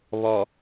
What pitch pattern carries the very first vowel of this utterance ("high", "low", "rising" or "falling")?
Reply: low